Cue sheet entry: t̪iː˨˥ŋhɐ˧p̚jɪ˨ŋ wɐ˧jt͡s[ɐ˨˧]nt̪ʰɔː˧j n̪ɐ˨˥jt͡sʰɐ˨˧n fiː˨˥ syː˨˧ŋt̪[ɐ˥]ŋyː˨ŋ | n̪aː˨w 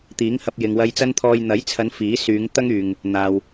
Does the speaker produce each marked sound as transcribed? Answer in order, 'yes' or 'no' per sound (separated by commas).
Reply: no, yes